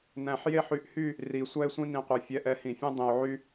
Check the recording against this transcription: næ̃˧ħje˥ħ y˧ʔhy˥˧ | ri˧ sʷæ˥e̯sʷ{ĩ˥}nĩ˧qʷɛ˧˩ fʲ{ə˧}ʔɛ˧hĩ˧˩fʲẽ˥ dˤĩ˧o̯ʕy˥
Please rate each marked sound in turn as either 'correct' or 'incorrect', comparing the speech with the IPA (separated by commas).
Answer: correct, incorrect